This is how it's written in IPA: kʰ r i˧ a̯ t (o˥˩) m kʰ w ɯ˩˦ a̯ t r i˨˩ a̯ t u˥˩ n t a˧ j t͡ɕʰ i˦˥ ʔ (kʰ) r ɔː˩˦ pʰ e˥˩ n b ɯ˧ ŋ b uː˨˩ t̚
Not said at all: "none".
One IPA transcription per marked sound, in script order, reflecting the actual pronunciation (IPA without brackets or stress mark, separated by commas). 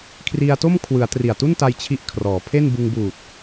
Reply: o˥˩, kʰ